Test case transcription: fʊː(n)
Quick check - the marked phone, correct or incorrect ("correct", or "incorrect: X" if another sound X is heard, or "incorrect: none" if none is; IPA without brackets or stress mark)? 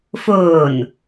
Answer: correct